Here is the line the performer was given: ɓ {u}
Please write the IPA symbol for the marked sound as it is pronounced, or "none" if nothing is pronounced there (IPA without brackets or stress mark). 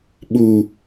u